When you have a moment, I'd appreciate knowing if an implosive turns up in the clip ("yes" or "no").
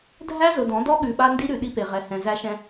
yes